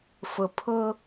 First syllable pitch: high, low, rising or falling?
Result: low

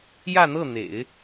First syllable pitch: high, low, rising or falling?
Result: falling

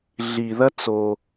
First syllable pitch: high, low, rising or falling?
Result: low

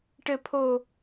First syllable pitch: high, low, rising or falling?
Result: high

